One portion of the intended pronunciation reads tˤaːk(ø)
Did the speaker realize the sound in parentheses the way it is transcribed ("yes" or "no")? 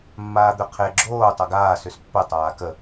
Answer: no